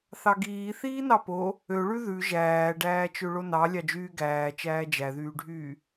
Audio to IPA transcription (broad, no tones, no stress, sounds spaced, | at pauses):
θ ɑ ɡ iː θ iː n ɑ p o | ø ɭ ʉ ð ʉ ʒ æː ɖ æː t͡ʃ ø ɭ o n ɑ lʲ ɑ d͡ʒ yː ɡ æː t͡ʃ æː d͡ʒ æ ð yː ɖʱ yː